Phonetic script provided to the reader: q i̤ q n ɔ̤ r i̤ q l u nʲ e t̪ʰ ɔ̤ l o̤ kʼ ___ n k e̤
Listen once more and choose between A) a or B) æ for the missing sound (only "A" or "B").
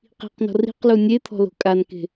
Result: A